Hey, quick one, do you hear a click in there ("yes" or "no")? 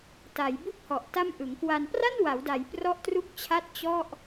no